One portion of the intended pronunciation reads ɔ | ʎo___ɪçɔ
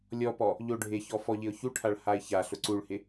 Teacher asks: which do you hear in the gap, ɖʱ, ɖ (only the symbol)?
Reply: ɖʱ